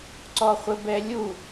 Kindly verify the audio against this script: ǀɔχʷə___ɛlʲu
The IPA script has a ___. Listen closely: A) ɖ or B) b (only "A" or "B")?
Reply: B